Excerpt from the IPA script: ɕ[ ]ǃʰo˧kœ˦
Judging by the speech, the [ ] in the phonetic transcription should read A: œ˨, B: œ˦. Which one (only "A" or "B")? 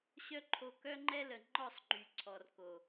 B